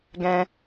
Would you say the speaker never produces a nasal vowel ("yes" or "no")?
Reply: no